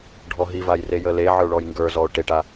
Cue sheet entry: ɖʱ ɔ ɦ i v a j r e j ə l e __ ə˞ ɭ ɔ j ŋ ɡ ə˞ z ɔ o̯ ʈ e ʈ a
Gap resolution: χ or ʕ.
ʕ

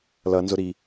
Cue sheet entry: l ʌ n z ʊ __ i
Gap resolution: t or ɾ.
ɾ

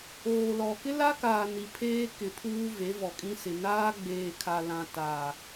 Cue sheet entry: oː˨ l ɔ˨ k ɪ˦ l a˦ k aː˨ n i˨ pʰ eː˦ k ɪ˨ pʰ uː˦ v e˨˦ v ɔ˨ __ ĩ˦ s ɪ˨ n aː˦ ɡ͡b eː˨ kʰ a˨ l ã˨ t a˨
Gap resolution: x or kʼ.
kʼ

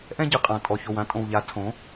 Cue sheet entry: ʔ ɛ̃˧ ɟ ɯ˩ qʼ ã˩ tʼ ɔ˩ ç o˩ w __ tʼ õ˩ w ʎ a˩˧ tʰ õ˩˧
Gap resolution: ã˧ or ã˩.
ã˧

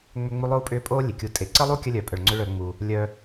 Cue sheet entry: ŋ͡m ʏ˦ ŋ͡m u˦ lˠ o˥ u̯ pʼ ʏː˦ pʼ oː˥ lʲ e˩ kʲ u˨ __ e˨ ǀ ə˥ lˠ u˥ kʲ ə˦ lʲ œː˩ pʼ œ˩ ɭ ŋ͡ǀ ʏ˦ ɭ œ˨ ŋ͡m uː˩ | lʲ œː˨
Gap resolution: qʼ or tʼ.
tʼ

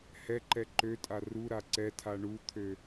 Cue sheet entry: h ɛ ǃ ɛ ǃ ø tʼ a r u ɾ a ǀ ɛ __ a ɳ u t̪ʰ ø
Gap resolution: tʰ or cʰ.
tʰ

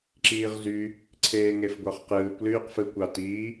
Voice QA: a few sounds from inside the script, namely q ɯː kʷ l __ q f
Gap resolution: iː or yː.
yː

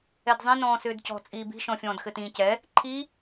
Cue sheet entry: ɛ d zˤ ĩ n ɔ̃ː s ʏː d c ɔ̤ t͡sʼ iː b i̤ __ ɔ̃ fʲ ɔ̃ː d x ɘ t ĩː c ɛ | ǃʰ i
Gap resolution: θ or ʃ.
ʃ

